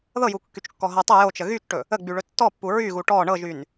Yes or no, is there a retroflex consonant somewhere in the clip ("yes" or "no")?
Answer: yes